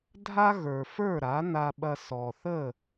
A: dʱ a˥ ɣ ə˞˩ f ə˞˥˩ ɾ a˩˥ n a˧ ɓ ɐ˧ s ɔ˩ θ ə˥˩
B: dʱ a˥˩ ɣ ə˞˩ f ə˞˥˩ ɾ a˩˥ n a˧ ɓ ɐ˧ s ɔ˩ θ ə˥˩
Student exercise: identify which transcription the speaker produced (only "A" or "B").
A